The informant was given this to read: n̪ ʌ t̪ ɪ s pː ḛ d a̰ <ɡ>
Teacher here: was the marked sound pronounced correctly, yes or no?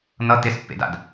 no